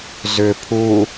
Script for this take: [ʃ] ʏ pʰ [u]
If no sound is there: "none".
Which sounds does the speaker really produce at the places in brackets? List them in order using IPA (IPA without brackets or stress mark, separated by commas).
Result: z, u